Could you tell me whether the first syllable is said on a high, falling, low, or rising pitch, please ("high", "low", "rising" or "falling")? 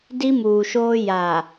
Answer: high